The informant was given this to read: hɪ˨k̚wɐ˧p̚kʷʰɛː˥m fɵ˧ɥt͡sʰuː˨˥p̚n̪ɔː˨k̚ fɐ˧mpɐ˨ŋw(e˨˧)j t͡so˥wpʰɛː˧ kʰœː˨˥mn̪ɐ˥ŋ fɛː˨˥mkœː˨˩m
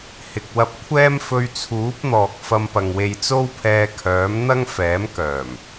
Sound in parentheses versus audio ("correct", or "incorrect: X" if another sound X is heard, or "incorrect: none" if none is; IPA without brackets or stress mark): incorrect: e˧